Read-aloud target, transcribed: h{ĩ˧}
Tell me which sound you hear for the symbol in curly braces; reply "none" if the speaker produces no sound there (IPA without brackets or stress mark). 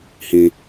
ĩ˧